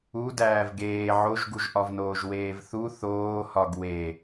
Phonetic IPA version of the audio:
u d æː v ɡ eː ʕ o ʒ ɡ u ʒ ʔ ɒ v n oː ʒ w eː v θ u θ oː h ɒ ɡ w e

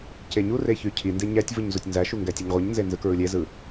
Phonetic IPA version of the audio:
c e ɲ u r e ç y cʰ i n d e ɲ æ tʲ v ɯ ɲ z u tʲ n z æ ʃ u ŋ ɡ æ tʲ e ɲ ʁʷ ɯ ɲ n z e n z ɯ k ɹ ɯ lʲ e z ɯ

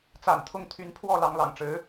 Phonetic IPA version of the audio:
t͡s a̰˨˩ n t̪ʰ ʊ˥˩ ŋ t̪ʰ y˧˥ n pʰ w ɔ˥˩ l ɑ˧˥ ŋ l ɑ̰˨˩ ŋ ʈ͡ʂ ɻ̩˧˥

